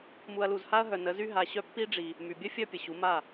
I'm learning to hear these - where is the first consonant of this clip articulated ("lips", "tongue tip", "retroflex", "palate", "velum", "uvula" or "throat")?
lips